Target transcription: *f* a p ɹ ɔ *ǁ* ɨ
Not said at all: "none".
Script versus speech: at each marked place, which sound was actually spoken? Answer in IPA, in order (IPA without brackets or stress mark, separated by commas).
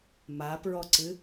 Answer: m, ǀ